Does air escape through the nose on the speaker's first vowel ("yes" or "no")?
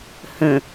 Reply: yes